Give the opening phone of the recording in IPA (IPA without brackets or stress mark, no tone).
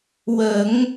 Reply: w